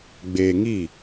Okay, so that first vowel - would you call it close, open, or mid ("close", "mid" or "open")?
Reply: mid